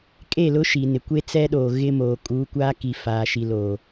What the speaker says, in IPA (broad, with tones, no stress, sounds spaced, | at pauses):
kʼ e˦˨ l ʊ˦ ʃ i˨ n ɪ˨ kʷ e˦ t͡s ɛ˦ ɗ oː˨ ɣ ɪ˦ m oː˨ kʼ uː˨˦ kʷ aː˦ k i˨ f aː˨ ʃ i˨ l oː˨